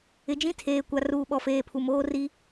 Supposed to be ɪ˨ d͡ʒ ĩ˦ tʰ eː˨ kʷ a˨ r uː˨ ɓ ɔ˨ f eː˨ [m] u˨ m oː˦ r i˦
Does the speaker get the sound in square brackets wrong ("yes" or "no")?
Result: yes